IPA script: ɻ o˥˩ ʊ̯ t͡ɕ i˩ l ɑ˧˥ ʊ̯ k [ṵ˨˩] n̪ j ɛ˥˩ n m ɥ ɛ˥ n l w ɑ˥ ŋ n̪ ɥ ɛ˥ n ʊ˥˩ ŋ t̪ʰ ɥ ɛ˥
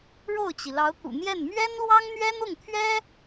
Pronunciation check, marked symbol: correct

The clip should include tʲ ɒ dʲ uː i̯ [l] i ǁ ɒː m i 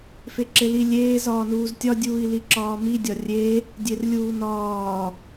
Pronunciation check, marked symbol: correct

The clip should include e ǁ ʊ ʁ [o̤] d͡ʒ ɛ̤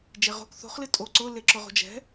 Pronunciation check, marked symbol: correct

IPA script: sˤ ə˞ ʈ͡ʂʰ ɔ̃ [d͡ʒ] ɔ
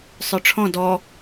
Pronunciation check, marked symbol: incorrect: d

